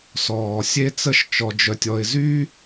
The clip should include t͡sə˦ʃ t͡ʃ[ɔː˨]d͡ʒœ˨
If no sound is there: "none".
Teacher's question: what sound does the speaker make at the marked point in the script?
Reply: ɔ˨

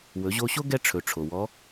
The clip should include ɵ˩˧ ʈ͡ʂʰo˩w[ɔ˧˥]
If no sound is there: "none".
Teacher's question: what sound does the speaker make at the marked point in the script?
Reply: ɔ˧˥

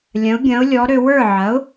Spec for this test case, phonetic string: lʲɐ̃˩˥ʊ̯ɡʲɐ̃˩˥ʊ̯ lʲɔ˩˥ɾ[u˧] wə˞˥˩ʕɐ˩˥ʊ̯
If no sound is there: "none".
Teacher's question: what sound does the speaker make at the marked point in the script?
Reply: ø˧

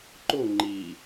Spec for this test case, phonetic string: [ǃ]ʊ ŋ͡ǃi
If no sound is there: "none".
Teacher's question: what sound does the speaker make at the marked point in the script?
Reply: ǃ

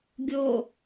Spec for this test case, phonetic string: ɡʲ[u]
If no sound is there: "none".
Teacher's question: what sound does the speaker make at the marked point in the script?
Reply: o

